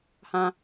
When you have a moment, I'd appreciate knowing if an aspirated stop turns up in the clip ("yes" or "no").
no